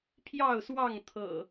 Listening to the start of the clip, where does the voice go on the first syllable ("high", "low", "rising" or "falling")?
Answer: falling